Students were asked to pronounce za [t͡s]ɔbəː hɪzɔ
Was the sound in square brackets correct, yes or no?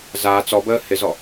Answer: yes